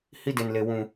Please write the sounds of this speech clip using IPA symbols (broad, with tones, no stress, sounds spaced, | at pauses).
h i˦ d e˨ n l e˨ w ũ˨